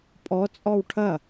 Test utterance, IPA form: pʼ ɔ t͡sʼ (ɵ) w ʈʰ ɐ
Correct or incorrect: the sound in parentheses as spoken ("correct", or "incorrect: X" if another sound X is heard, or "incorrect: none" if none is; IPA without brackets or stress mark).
incorrect: ɔ